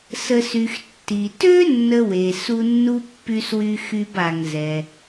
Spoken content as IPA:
sə˨sy˩x tːi˩tø˥ nːə˥we˩ su˦nːu˥pːy˦swy˦ xy˦ba˨ŋ zɛ˩

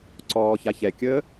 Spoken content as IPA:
ǀɔːçaçɛkʲəː

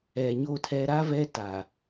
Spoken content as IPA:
ɛ˨ɲo˦˨tʰɛ˦ ɾa˦vɛ˦ ta˨

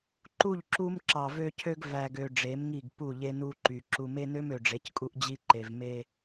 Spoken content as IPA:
ǃu˦˨ʎǁu˦m ǁɑ˨vø˦cʰø˦ɡ væ˨ɡø˨ ɖ͡ʐe˨˦mŋi˦˨ɡ pu˦˨ʎe˦nu˦ǃy˨ ǁu˨me˦nø˦m ø˨ɖ͡ʐe˨˦ckʼu˦ʔ d͡ʑi˦ǃe˨vme˦

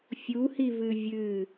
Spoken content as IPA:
fʲuhivɨ vʲɨ

